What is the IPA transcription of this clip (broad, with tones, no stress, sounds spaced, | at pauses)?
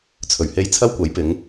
t͡sʰ ɵ˨˩ ɥ h e˧ j t͡sʰ ɐ˥ w kʷ ɐ˨˥ j p ɪ˨˧ ŋ